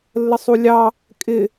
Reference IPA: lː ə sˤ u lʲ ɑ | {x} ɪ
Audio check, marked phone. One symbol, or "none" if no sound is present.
kʼ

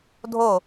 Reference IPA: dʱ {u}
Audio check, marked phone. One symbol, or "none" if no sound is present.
o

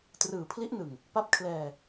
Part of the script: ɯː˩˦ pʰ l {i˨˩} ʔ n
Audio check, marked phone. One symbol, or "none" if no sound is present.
i˦˥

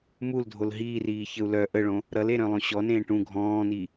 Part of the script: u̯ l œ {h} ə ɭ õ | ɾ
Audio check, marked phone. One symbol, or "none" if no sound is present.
ʔ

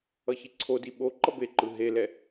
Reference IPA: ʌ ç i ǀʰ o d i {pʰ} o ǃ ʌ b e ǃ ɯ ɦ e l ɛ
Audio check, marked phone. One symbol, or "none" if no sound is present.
ɓ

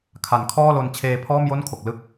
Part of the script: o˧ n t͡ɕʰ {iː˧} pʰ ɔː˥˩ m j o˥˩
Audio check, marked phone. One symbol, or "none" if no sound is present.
eː˧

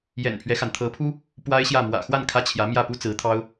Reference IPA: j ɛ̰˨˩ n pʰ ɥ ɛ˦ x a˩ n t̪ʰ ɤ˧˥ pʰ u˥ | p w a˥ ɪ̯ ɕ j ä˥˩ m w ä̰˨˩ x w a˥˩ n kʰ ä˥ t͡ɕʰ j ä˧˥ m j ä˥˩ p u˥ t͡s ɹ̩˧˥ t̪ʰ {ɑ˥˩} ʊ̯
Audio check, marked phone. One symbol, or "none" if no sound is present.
ɑ˥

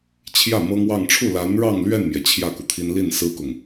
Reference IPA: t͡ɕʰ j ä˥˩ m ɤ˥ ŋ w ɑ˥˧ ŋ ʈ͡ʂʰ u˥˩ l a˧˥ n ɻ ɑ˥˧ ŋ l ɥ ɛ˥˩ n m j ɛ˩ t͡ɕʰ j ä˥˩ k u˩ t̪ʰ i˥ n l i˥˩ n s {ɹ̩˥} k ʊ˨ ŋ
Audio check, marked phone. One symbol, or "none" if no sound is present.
ɹ̩˥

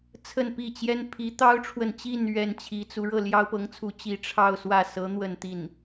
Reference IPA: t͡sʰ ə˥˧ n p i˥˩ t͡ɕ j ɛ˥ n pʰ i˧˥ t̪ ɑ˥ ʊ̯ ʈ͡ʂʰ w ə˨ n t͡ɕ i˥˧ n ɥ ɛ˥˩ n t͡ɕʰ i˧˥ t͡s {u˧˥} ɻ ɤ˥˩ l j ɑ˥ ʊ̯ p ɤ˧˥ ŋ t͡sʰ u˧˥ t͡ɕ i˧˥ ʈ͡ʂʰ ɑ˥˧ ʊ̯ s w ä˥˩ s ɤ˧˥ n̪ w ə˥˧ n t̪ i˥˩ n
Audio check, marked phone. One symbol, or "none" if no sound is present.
u˧˥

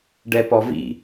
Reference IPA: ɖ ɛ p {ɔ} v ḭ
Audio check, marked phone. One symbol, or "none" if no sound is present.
ɔ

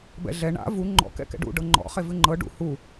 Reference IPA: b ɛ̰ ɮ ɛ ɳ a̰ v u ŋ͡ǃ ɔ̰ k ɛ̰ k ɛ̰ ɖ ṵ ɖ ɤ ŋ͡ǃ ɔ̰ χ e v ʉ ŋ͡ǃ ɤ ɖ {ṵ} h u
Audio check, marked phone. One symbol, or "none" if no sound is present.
ṵ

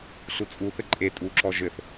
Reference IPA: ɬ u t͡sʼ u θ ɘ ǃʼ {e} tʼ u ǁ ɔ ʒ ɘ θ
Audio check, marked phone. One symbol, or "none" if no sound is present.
e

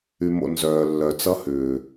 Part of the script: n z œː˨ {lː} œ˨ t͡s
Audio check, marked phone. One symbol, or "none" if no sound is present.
lː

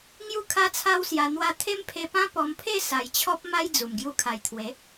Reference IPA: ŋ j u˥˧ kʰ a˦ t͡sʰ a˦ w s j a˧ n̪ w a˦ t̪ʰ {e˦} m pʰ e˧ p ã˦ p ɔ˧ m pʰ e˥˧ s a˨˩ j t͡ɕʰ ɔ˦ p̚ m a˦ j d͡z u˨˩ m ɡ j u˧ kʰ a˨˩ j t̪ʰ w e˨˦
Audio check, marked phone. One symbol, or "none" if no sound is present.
e˦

